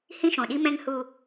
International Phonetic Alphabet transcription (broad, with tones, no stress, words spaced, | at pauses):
hĩ˦ʃõ˨ɗi˦ mɛ̃˦ŋhu˦